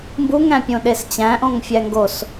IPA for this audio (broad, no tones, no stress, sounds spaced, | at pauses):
m b u ŋ æ̃ pʲ õ ɗ e s t͡ɕ æ̃ ʔ õ ŋ fʲ æ ŋ ɡ o s